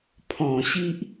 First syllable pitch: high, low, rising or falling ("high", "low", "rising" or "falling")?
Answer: low